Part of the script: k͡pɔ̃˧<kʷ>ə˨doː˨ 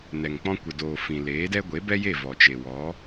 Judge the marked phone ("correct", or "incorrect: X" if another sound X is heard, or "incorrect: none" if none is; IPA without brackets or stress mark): correct